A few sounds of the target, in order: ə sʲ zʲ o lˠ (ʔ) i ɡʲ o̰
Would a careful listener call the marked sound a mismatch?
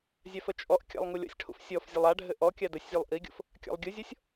no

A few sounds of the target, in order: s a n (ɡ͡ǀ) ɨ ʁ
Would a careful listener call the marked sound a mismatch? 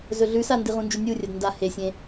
yes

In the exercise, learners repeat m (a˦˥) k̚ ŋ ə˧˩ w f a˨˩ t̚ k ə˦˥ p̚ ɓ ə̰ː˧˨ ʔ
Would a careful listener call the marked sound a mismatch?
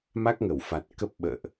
no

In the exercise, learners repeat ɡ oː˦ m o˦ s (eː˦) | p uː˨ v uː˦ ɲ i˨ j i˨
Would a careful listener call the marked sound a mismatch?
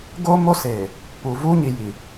yes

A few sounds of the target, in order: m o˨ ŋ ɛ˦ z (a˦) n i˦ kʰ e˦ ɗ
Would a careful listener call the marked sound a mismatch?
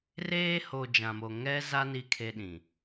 no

